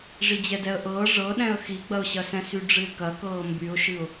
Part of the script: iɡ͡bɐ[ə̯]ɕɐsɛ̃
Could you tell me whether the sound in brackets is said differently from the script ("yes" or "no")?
yes